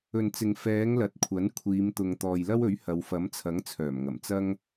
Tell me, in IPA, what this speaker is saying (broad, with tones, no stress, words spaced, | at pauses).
ɵ˨nt͡sɪ˨ŋ fɛː˨˧ŋ lɐ˨t̚kʷʰɐ˨˥n kʷʰiː˨˧mt̪ʊ˨ŋ t̪ɔː˨jlɐ˥wɵ˨˥ɥ hɐ˨˧wfɐ˨˥mt͡sʰɐ˨˥ŋ t͡sʰœː˨˩mŋɐ˨˩m t͡sɐ˥ŋ